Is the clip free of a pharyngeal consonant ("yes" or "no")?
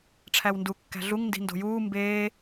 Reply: yes